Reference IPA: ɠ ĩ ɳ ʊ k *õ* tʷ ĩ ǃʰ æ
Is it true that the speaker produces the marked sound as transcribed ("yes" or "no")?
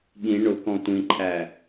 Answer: no